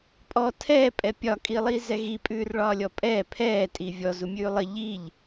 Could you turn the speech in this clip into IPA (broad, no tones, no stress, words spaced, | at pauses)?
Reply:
pʼɔ tʰɛːpʼɛ pʲɒkʼilˠiːzɛ ɣi pʼʉːrɭɒːlʲɔpʼɛ pʰɛːtʼi vʲɔzumʲʉː lˠə ʎiʎ